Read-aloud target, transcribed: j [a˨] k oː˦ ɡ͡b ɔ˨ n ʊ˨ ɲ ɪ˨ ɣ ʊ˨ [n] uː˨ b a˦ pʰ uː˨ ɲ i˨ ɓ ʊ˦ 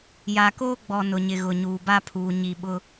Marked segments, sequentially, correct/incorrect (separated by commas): correct, incorrect